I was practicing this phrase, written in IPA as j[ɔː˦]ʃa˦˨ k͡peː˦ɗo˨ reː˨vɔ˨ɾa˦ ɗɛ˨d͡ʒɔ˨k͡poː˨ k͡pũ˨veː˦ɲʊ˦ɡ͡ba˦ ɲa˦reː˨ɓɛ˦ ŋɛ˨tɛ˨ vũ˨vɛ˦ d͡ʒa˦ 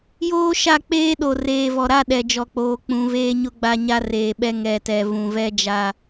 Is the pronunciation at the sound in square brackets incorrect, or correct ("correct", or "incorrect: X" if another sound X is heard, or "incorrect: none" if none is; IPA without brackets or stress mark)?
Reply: incorrect: oː˦